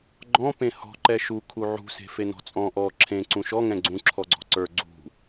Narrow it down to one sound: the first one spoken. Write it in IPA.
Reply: ɡ͡ǃ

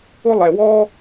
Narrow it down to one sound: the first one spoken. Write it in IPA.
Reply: ʊ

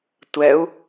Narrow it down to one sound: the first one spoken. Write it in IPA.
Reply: tʷ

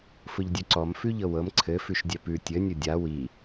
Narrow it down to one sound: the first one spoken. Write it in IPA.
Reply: f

